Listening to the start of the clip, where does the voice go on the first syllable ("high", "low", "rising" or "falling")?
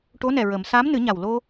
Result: rising